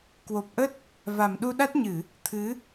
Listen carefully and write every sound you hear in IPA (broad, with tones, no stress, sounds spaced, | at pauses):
k w o˨˩ p̚ ʔ ə˦˥ t̚ | v a˨˩ m ɗ u˧ ɗ a˦˥ t̚ ɲ ɨ˧˩˨ | t̪ʰ ɨ˨˦